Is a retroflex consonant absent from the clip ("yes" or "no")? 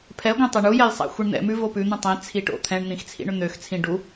no